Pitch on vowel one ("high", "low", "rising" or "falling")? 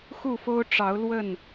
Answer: falling